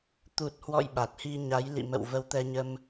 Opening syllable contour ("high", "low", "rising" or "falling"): low